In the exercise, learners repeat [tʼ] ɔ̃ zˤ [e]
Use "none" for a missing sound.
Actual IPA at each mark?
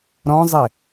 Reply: ɾ, e

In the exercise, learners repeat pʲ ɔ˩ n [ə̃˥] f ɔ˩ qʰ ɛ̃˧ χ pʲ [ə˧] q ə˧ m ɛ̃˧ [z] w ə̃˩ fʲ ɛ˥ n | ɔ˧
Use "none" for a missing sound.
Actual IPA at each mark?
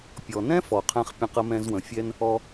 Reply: ɛ̃˥, ə̃˧, z

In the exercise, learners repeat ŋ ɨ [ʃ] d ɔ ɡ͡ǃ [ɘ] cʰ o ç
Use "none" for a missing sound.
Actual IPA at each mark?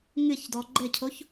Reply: ç, ɘ

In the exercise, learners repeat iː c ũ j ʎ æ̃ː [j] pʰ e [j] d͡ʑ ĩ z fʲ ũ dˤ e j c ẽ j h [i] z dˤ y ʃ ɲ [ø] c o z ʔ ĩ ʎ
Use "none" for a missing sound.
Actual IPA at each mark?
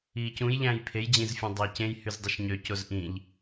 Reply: j, j, y, ø

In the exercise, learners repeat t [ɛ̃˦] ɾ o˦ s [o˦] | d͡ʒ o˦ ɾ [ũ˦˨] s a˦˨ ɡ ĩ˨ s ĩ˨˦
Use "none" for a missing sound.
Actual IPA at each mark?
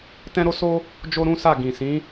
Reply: ɛ̃˦, o˦, ũ˦

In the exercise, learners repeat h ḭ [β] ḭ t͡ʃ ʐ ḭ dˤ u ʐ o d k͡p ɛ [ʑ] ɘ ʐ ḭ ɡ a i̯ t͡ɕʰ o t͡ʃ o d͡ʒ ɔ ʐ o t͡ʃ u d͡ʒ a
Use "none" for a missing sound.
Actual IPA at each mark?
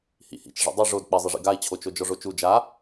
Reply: h, zˤ

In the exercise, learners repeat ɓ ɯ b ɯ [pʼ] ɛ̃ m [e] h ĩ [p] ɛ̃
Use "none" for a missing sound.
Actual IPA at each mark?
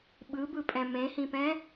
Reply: pʼ, ẽ, p

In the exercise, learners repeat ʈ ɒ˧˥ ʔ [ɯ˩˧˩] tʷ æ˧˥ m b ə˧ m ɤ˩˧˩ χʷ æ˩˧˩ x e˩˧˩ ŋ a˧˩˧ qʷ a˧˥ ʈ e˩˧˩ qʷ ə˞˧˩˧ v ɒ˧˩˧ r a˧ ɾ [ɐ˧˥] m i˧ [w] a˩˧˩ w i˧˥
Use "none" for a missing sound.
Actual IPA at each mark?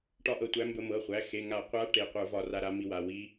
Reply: ɤ˩˧˩, a˧˥, w

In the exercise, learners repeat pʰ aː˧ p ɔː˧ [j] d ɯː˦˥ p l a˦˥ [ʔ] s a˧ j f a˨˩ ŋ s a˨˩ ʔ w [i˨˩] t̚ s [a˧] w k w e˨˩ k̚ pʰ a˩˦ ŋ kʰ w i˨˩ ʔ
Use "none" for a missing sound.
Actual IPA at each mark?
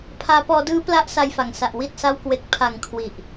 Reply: none, ʔ, i˨˩, a˧

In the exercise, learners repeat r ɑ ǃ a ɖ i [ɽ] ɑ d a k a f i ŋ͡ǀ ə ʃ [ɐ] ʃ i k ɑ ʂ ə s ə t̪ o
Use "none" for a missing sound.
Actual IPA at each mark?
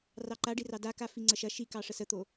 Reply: r, ɐ

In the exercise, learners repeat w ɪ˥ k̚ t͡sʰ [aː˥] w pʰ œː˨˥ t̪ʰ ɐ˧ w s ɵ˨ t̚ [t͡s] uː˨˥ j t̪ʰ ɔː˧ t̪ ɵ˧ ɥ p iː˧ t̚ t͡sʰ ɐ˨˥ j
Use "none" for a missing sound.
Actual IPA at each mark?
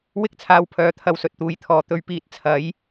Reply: aː˧, t̪

